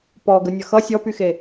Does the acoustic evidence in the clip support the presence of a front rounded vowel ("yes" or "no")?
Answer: yes